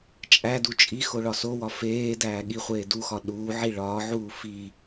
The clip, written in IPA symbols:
t͡ʃʼ æ d u t͡ʃʼ i x o ɭ ɒ s o w ɒ f eː d æː ɠ i χʷ eː d u x ɒ ɗ uː ʕ i ɭ ɒː ʕ uː f i

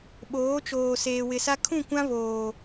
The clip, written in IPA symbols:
ɓ oː˨˦ t͡ʃ oː˨ s eː˨ w ɪ˨ s a˦ kʰ ũ˦˨ kʷ ã˦ β oː˨

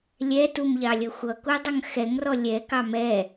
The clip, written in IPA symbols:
lʲ ɛ t u m ʎ ɑ lʲ ʌ xʷ ʌ k u dˤ ʌ ŋ x ɛ ŋ r ɔ lʲ ɛ k ɑ m ɛ

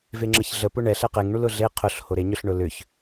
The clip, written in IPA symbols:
v e ŋ͡ǁ ə ç ɮ ə p ʊ ɳ ɛ ɬ ɛ q e ŋ ɳ u l ʊ ɮ e qʰ ʊ ɬ h o ɾ e ɲ ʏ ɬ ɳ ʊ l ʏ ç

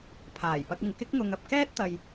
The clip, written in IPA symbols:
pʰ aː˨˩ j p ɐ˧ k̚ ɪ˨ ŋ k ɪ˥ k̚ ŋ ʊ˧ ŋ ɐ˨ p̚ k ɛː˥ t̚ t̪ ɐ˧ j

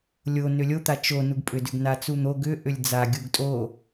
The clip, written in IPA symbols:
lʲ o n ʏ lʲ o t̪ a t͡ʃ o n u ɡ pʼ ʏ d ʏ ɡ n a t͡s u n̪ o ɡ ʏ ʔ ʏ lʲ d͡z a ɡʲ u ɡ tʼ o

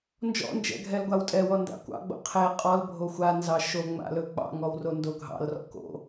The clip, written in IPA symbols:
n d͡ʒ ɔ̰ n d͡ʒ ɛ̰ ɡʱ ɛ l ɡʷ a w tʼ ɛ w ɔ n d a̰ kʷ ɑ̰ ɡ͡b o̰ qʰ e qʼ ɔ l bʱ o xʷ a n z ɑ ʃ o ŋ͡m a̰ l ɵ k͡p ɑ̰ ŋ ɔ w r o n d o ɡʱ ɑ̰ l r ɔ̰ k o̰

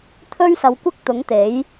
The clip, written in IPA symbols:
t̪ʰ ɵ˥ ɥ s ɐ˨˧ w kʷ ɪ˥ k̚ t̪ ʊ˨˥ ŋ t̪ e˨˥ j

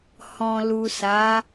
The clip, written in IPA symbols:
h ɔ̃˨ l u˨ s a˨˦

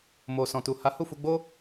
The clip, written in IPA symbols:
m o˨ s ɔ̃˨ t u˨ h a˨˦ h u˦˨ f u˧ ɡ͡b o˦

